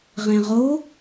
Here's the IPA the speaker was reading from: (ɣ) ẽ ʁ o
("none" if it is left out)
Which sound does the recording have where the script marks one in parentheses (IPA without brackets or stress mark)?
ʁ